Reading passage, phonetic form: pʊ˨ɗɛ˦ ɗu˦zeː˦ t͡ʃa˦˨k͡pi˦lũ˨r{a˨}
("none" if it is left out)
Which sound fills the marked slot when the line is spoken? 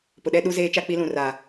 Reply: a˨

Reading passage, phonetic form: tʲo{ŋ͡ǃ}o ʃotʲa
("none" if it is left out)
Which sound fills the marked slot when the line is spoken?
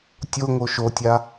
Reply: ŋ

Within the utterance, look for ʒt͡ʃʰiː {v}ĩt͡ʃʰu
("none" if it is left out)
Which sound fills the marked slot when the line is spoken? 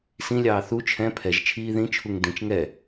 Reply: ð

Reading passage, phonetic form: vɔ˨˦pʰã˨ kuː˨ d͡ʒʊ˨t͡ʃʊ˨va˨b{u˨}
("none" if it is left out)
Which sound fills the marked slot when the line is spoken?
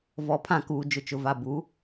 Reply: u˨˦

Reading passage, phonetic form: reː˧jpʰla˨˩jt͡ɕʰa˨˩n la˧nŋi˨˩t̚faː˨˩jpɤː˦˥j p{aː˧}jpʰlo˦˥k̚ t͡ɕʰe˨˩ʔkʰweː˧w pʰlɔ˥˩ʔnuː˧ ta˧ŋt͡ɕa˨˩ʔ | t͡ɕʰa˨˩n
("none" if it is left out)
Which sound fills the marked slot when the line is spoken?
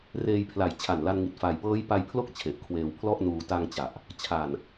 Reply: a˧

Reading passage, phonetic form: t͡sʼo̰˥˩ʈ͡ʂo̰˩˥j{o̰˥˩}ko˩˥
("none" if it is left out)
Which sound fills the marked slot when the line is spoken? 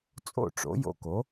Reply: o̰˧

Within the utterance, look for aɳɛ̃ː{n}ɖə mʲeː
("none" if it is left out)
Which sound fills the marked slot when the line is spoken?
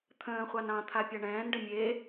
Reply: n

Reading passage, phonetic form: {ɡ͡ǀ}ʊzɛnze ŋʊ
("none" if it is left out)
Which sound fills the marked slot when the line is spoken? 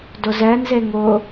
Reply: d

